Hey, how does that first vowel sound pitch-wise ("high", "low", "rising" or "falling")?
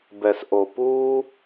low